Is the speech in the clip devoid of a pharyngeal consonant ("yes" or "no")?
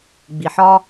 no